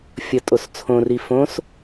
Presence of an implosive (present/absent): absent